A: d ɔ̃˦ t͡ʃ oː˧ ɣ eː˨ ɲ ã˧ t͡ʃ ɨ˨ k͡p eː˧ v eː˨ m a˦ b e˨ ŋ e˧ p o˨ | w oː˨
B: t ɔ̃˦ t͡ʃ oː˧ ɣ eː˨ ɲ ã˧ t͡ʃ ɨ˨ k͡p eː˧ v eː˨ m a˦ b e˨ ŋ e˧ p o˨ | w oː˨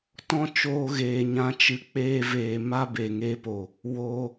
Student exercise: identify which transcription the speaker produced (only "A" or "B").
B